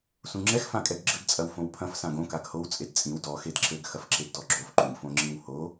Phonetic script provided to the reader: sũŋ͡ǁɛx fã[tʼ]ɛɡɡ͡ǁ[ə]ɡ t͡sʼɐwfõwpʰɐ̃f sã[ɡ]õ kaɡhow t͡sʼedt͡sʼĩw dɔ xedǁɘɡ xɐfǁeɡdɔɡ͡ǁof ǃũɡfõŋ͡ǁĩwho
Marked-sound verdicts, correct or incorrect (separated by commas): incorrect, incorrect, correct